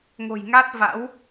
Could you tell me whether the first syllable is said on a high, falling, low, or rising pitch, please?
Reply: low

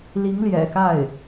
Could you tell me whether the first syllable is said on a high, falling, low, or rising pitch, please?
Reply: rising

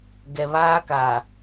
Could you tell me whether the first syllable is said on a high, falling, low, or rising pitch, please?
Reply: low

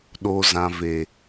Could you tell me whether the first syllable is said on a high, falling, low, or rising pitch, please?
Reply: low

